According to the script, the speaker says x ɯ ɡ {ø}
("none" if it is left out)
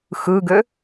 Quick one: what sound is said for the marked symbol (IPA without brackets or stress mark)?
ø